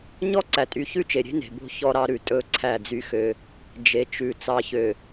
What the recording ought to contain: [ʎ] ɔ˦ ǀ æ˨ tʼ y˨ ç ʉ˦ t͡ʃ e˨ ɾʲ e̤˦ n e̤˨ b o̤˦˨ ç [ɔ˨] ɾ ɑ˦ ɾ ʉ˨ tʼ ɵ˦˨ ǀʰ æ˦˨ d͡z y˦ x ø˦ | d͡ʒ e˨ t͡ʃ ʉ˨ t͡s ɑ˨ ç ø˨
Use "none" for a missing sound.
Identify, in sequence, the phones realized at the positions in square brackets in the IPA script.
ɲ, ɔ˦

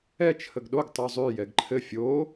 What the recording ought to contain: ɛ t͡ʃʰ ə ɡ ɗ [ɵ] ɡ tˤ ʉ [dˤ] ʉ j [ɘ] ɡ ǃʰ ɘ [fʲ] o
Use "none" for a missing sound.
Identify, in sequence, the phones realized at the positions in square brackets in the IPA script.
o, zˤ, ɛ, fʲ

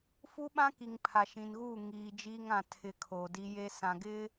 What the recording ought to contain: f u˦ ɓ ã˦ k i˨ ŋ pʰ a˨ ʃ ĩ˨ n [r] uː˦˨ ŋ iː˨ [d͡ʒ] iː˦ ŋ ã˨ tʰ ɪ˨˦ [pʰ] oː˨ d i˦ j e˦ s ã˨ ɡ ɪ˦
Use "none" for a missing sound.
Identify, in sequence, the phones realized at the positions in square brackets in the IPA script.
ɣ, d͡ʒ, kʰ

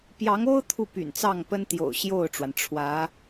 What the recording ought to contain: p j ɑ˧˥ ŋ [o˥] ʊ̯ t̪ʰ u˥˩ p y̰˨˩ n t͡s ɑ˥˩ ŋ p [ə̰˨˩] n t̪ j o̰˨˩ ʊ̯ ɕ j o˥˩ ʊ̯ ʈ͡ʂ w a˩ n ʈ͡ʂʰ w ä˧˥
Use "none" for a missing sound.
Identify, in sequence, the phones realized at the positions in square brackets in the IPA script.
o˥, ə˥

